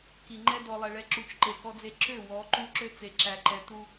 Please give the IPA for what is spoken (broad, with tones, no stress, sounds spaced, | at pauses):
k i˨ ŋ͡ǃ ɛ˦ d ɔ˨ lˠ ɛ˨ ɭ ɛ˨ ǁ u˨ t͡ʃ ǃ e˨ k ɔ˦ d͡z e˦ ǁ ø˦˨ w ɔ˨˦ ǃ u˦ ǁ ø˦ t͡s e˨ ǁ æ˨ ǃ ɛ˨ t u˦